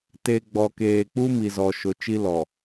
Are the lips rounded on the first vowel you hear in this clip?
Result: no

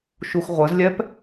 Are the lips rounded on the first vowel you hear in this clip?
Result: yes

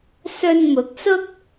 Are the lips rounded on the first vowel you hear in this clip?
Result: yes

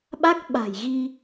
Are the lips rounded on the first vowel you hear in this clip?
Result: no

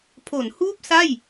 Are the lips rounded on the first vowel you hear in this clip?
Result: yes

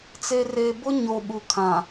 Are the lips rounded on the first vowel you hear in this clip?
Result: no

